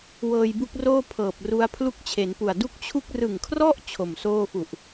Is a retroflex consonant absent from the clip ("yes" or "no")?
yes